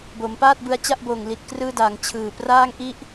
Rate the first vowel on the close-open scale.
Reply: mid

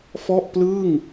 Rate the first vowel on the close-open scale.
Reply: mid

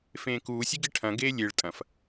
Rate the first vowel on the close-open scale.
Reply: mid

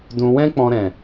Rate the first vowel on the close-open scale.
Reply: close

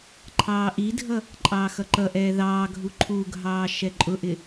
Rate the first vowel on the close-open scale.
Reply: open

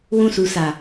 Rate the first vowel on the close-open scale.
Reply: close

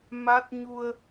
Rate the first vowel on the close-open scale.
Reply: open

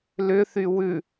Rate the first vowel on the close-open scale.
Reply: close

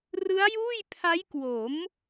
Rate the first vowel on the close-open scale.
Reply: close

